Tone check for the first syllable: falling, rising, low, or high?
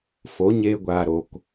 rising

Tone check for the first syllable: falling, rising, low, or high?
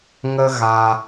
high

